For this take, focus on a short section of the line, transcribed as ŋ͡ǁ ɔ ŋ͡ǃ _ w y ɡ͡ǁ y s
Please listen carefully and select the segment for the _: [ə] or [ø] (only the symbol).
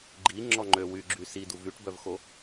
ø